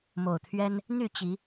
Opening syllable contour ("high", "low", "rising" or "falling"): low